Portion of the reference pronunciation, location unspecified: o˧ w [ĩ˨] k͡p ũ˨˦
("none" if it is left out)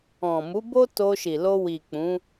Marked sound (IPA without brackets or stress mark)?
i˨